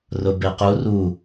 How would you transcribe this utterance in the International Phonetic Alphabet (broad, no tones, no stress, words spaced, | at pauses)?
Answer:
rʊbequ ru